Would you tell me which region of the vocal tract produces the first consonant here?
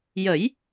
palate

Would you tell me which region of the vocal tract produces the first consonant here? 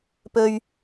lips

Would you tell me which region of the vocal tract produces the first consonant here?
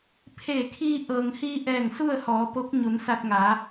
lips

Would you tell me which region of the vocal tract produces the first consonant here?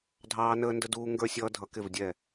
tongue tip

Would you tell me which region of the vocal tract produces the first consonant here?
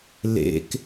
tongue tip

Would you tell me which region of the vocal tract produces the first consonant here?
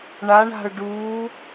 retroflex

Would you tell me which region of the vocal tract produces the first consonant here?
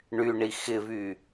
retroflex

